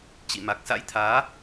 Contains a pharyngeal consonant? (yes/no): no